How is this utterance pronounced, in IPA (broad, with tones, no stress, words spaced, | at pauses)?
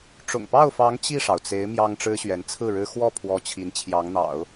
ʈ͡ʂʊ̰˨˩ŋpɑ˥˩ʊ̯fɑ˧˥ŋ t͡ɕi˥˩ʂɑ˩ʊ̯t͡se˧˥ɪ̯ mjɑ˥ŋʈ͡ʂɻ̩˥ɕɥɛ˧˥n t͡sʰɹ̩˥˩ɻɻ̩˥ xwɔ˥˩pʰwɔ˧˥ t͡ɕʰi˧˥nt͡ɕʰjɑ˧˥ŋn̪ɑ̰˨˩˦ʊ̯